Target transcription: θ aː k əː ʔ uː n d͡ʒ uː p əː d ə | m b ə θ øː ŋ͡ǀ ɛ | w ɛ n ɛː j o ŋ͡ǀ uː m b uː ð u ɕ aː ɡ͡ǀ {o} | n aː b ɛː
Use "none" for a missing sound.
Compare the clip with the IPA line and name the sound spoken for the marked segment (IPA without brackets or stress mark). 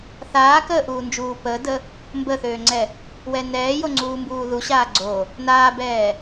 o